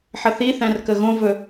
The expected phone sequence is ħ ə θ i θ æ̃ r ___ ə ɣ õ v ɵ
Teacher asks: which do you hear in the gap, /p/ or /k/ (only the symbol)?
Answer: k